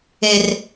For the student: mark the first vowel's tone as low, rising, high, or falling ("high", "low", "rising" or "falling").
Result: high